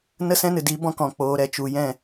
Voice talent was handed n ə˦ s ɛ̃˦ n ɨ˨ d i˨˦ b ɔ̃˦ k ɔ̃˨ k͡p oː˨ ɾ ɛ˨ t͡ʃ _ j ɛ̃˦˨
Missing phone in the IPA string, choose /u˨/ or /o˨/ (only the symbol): u˨